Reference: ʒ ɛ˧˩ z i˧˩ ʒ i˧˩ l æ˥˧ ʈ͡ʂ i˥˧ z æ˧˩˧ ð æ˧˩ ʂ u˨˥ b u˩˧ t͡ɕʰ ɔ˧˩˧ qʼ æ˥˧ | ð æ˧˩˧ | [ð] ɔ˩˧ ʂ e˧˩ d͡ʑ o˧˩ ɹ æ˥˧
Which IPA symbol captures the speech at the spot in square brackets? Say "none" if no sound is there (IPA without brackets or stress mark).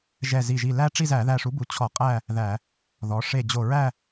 ð